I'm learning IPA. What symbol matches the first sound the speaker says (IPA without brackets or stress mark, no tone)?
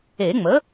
e